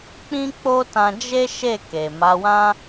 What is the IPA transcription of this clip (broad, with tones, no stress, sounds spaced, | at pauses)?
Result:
k͡p ĩ˦ k͡p o˦ t ã˧ d͡ʒ e˦ ʃ e˦˨ k e˨ m a˨˦ w ã˦